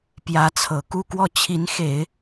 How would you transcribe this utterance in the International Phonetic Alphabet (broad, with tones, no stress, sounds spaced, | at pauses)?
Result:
p j ä˧˥ t͡sʰ ɤ˨˩ k u˥˧ k w ɔ˥˩ t͡ɕʰ i˧˥ n x e˨˩˦ ɪ̯